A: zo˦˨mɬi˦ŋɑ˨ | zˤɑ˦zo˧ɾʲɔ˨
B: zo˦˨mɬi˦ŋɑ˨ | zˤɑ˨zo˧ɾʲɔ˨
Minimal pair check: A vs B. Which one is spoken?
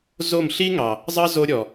A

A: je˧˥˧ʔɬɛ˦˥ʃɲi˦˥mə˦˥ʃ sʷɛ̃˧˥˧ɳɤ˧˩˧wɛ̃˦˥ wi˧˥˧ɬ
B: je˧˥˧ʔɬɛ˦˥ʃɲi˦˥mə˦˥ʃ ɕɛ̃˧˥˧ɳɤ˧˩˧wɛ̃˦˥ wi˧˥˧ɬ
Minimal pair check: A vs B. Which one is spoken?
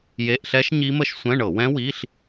A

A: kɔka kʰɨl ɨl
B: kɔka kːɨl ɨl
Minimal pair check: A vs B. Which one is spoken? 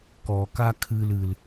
A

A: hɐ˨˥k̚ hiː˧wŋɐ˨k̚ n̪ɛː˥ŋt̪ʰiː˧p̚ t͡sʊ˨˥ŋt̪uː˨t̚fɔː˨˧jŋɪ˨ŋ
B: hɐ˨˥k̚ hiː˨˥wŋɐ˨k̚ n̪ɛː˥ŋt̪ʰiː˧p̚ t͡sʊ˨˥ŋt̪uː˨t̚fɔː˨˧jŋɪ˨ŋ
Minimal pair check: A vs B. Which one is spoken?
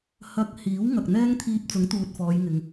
B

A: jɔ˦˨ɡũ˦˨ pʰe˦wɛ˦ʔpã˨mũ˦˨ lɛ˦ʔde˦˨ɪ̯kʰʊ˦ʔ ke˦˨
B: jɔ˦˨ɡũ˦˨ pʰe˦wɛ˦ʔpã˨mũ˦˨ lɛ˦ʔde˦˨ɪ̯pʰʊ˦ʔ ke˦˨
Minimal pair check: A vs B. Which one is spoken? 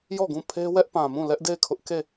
A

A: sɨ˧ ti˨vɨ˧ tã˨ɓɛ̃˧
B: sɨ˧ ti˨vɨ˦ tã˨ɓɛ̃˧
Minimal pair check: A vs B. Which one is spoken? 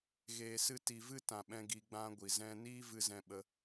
B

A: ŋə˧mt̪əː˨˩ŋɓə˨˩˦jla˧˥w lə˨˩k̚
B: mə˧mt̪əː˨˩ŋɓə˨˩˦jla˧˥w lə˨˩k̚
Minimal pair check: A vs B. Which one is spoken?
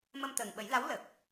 B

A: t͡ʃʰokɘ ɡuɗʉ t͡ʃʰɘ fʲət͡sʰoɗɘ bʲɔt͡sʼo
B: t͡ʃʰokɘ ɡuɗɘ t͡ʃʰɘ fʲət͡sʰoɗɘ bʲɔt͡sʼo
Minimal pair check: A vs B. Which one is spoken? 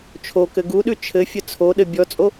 A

